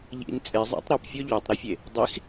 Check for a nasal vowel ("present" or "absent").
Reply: absent